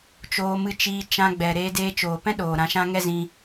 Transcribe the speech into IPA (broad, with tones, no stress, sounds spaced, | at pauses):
t͡ʃ oː˧ m ɨ˧ t͡ʃ iː˧ t͡ʃ ã˧ ɡ͡b ɛ˨ ɾ eː˧ d eː˧ t͡ʃ oː˨ p ɛ̃˦ ɗ oː˨ ɾ ã˧ ʃ ã˦ ŋ ɛ˦ z ĩ˧